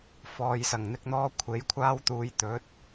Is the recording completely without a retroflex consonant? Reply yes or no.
yes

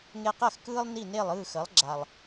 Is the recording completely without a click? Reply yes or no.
no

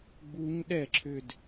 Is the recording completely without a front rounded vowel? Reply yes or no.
no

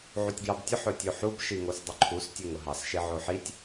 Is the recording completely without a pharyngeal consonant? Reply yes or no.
no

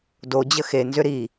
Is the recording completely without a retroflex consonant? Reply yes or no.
yes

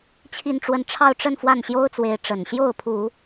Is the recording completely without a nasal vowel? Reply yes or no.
yes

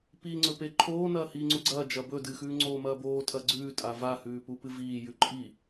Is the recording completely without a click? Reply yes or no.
no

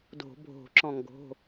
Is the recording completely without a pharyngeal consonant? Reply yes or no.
yes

